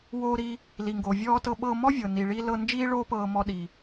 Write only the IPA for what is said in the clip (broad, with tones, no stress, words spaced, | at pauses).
woː˧ɾi˧ | li˩ŋɡo˩ vʲɔː˧tɤ˧ɓɤː˧ mɔ˥ vʲɤ˩ni˩ɭi˧ lɤ˧ nd͡ʒiː˥ɭoː˥pɤː˧ mɔ˧ɗi˩